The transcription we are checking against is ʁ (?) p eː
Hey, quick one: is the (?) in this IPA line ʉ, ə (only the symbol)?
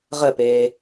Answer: ə